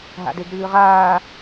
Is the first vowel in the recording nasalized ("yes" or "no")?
no